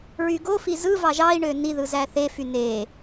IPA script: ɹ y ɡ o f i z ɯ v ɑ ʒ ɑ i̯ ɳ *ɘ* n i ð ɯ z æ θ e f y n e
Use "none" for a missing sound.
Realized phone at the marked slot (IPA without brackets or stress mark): ø